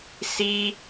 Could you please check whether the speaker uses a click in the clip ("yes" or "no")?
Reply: no